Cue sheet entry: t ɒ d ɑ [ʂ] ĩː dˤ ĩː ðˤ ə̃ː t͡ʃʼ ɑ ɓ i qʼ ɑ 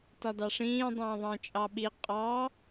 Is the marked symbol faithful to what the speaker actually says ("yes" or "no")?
yes